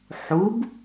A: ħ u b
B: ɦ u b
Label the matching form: A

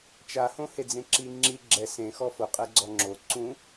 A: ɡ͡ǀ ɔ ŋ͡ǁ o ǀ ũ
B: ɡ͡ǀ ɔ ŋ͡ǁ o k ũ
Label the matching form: A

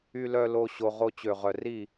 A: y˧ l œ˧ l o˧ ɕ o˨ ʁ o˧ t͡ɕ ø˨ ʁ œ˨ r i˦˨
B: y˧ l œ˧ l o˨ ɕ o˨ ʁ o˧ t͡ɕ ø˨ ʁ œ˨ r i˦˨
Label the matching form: A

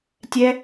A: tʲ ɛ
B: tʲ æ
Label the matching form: A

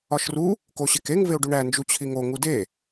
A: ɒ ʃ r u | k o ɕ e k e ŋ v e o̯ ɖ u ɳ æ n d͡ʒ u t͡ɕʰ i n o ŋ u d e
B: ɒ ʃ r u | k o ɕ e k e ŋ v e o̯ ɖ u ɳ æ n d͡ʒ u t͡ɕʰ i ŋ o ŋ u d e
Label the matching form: B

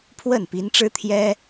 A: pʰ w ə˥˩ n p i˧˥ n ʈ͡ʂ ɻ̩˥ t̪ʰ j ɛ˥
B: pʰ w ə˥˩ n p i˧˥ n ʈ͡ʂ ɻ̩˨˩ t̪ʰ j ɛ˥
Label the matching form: A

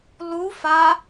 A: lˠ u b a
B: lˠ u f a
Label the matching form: B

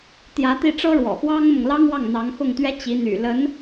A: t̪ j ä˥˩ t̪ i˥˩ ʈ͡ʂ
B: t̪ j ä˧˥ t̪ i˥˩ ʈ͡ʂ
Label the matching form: B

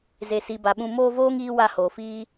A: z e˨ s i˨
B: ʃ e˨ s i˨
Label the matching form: A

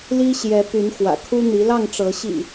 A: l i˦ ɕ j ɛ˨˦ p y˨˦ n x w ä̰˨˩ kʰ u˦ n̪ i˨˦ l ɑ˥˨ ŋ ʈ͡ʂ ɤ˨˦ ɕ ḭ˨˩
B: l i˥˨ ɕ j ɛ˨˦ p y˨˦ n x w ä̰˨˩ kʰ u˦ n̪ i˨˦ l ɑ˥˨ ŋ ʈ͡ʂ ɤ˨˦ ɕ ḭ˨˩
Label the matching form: A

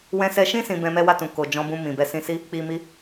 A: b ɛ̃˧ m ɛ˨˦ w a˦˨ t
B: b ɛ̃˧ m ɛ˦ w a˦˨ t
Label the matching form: B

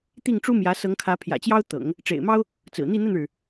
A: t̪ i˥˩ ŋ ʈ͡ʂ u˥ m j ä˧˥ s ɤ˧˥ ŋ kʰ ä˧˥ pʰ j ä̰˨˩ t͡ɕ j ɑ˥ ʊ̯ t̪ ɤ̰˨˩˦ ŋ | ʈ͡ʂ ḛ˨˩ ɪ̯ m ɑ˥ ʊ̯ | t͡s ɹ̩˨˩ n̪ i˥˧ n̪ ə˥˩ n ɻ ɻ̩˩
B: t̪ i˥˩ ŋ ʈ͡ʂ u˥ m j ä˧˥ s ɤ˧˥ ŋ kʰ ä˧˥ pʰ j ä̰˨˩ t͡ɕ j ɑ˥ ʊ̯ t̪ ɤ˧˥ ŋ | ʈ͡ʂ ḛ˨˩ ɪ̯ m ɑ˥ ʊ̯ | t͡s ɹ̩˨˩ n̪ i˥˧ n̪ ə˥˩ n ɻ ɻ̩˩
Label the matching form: A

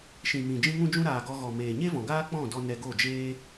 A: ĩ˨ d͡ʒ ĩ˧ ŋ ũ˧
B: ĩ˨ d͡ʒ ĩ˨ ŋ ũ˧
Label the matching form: A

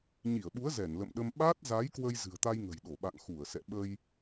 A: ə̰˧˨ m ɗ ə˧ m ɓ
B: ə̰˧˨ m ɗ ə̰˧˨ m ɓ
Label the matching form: A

